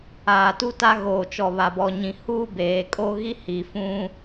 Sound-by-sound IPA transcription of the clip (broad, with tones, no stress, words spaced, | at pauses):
aː˨tu˦ta˦ ɣoː˨t͡ʃɔ˨βa˨bɔ˨ ɲĩ˨huː˦beː˨ kʼo˦ ɣi˦hi˨fũ˦